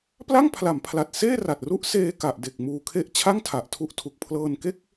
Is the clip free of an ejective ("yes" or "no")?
yes